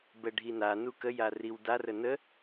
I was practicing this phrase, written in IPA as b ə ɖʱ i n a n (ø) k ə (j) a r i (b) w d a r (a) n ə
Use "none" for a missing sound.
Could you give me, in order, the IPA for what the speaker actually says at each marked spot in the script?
u, j, none, ə

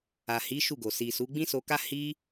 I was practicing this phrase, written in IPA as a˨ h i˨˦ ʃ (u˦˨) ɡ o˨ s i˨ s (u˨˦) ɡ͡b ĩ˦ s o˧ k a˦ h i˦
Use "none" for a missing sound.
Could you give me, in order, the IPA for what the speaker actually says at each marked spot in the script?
u˦˨, u˨˦

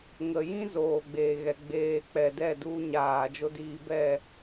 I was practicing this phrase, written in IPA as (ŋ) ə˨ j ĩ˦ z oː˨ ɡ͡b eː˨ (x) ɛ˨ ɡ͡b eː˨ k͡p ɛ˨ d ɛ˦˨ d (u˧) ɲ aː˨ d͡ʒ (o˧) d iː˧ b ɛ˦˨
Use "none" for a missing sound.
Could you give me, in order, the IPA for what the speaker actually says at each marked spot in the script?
ŋ, ɣ, u˧, o˧

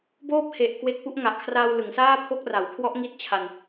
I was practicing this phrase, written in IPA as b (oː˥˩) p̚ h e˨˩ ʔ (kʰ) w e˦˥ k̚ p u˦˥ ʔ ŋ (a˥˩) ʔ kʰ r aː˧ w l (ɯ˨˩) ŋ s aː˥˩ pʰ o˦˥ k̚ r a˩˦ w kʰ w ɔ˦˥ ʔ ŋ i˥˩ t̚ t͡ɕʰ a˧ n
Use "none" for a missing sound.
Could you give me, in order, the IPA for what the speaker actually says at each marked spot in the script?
oː˥˩, k, a˨˩, ɯ˩˦

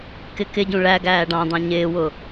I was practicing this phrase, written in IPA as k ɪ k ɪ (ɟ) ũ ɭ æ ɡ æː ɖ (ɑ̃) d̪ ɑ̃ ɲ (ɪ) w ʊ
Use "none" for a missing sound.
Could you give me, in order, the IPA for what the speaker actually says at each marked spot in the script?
ɟ, ɑ̃, ɪː

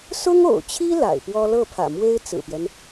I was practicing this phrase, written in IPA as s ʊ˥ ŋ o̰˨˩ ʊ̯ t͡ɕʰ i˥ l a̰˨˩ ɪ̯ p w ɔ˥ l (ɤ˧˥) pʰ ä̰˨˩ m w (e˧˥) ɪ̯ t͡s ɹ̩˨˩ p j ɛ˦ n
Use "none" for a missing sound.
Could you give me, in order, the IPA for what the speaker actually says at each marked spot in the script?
ɤ˥˩, e˥

